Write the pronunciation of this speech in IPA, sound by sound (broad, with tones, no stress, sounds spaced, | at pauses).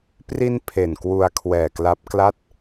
p r i˧ n pʰ e˨˩ n k w u˧ a̯ kʰ w ɛː˨˩ k l a˦˥ p̚ k l a˥˩ t̚